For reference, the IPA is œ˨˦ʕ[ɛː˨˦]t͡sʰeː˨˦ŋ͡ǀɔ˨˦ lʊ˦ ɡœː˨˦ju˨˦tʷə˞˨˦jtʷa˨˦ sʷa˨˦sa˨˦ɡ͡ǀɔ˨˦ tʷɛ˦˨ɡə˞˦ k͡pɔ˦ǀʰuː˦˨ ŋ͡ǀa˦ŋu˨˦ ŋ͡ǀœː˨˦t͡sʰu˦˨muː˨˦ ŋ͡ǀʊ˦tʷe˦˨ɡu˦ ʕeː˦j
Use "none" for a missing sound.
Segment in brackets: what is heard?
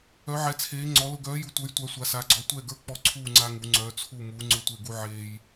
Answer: ɛ˨˦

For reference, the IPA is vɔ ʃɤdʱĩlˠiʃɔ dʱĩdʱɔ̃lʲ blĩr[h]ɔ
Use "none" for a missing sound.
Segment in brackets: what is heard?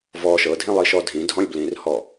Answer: h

